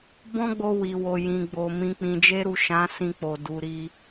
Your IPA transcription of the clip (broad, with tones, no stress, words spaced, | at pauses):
bɔ̃˦ɡ͡bo˧ wi˨wo˨ jĩ˨ɡ͡bo˨ mĩ˨k͡pĩ˨d͡ʒe˧ɾu˨ ʃã˨˦sĩ˧k͡po˨du˨ ɾi˧